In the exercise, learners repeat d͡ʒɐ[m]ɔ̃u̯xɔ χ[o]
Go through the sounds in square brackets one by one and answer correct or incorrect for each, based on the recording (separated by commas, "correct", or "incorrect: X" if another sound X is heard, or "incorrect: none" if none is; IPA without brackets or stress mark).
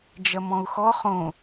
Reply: correct, incorrect: õ